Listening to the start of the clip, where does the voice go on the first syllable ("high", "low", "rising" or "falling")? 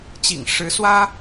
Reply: low